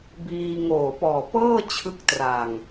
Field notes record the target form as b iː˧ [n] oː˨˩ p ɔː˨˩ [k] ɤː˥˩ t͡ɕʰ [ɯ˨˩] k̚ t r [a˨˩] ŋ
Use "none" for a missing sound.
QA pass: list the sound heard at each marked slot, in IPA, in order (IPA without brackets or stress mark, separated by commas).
ŋ, p, ɯ˦˥, a˨˩